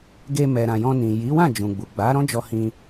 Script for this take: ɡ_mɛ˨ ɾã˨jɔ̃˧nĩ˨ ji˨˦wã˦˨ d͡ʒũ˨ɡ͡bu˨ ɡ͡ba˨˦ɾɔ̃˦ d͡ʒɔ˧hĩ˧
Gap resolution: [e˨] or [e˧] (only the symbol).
e˧